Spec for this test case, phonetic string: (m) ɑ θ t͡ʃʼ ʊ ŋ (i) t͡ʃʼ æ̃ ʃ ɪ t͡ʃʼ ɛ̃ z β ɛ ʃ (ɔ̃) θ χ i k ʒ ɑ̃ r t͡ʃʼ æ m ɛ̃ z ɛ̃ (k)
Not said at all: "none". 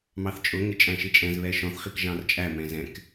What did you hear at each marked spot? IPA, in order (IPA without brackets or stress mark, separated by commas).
m, ɪ, ɔ̃, k